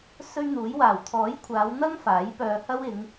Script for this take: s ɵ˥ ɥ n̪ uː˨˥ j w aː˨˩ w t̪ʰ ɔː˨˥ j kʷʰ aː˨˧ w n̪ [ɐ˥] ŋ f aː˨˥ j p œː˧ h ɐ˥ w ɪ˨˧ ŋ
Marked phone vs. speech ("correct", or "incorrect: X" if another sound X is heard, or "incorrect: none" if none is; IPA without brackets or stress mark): correct